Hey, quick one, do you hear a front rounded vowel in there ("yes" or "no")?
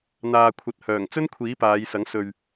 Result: yes